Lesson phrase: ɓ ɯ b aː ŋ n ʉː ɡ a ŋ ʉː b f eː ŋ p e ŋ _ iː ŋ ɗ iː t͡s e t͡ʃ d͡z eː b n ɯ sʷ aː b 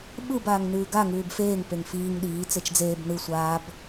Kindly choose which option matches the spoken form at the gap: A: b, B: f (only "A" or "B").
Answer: B